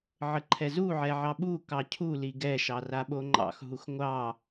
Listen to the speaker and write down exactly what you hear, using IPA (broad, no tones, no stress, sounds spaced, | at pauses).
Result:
ʕ ə ǃʰ ɛ z u ʕ ɛ ʕ ɑ ɓ u k ɑ cʰ u l i ɡ ɛ ʃ ɑ r a ɓ o ŋ͡ǃ ɑ̰ x ɦ u x ŋʷ ɑ